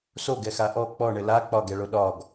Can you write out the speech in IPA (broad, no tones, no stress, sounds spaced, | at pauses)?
s o ɡ ɛ x a ʔ ɔ k͡p ɔ ɳ ɘ l a k͡p ɒ ɡ ɛ ɭ o ɗ ɒ ɡ